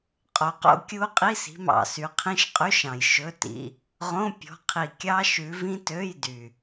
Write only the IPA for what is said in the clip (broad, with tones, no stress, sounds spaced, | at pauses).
qʼ o˨ q o̰˦˥ kʲ u˦˥ qʼ i˧˥˧ s i̤˨˦ m ɑ̰˨ s y˨˦ qʰ ĩ˧˥˧ ʃ qʼ y˧˥˧ ʃ ɑ̃˨ j ʃ ɵ˧˥˧ t ḭ˧˥˧ | ʁ õ˧˥˧ pʲ ɔ̤˨˦ qʰ i˨ kʲ ɑ˦˥ ʃ ʉ˨˦ v ĩ˦˥ t ø˧˥˧ j d y˨